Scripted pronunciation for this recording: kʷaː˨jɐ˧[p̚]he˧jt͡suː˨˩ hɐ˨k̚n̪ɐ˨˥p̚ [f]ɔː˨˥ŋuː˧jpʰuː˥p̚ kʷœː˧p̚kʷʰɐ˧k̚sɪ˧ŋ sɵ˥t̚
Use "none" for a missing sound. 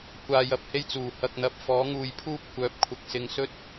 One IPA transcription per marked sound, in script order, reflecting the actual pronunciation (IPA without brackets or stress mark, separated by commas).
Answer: p̚, f